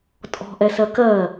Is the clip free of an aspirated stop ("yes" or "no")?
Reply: yes